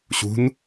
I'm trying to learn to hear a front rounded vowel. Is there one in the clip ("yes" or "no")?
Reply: no